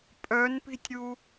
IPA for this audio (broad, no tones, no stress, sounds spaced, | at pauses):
pʼ œ n p i̤ tʲ ɾʲ u